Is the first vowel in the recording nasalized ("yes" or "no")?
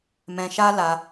yes